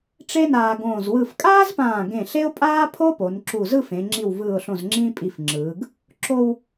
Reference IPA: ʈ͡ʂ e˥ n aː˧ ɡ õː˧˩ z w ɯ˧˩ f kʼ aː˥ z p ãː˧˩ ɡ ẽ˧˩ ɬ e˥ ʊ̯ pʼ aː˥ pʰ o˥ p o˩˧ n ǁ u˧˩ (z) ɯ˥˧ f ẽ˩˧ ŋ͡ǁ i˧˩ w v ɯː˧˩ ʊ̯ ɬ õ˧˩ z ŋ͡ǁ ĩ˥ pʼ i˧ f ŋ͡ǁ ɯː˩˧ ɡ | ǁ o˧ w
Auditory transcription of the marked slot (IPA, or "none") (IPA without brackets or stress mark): z